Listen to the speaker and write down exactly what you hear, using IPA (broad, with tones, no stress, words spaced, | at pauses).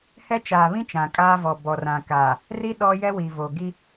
hɛ˦t͡ʃaː˨βĩ˦ t͡ʃã˨kʼaː˦vɔ˨ bɔ˨rã˨kaː˨ | ri˦ ɗɔ˦ jɛ˦wi˨vo˨ɡi˦